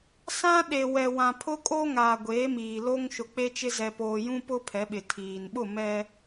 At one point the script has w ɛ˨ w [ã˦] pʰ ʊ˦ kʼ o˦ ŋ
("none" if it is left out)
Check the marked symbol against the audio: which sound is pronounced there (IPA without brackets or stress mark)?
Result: ã˨